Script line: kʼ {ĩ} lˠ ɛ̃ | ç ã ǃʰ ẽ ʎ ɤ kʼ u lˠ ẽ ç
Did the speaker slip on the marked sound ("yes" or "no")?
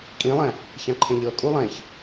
no